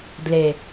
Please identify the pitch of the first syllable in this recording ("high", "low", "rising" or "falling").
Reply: low